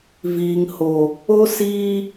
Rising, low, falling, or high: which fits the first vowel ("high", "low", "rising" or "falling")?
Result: low